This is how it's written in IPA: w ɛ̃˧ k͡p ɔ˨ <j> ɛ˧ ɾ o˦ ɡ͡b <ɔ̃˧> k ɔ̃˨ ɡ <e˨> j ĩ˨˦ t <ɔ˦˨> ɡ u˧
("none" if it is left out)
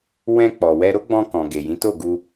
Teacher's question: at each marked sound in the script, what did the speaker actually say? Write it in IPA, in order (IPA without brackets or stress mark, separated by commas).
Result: w, ɔ̃˧, e˨, o˦˨